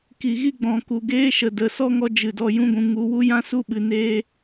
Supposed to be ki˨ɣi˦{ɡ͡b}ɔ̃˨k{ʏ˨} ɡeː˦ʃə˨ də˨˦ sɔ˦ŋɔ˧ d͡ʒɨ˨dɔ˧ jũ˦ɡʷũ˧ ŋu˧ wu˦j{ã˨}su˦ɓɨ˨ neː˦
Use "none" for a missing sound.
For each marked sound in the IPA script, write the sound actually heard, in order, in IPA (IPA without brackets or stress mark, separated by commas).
ɡ͡b, u˨, ã˦